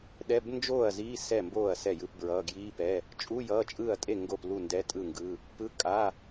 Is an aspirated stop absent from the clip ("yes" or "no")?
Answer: yes